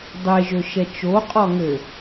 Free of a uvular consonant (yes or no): no